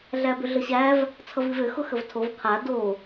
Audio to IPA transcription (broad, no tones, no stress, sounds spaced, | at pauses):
ɮ æ b ʏ ɮ ə ɕ æ v | t͡sʰ ʌ v i v ʏ x ʊ x ə v tʰ o v qʰ a d o